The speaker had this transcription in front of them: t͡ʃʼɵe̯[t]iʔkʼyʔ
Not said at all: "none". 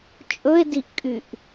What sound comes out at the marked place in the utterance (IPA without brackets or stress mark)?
d